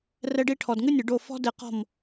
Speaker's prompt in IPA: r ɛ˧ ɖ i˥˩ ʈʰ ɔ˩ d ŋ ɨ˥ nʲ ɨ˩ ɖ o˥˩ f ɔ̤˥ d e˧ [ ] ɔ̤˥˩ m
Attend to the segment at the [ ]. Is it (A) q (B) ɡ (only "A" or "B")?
A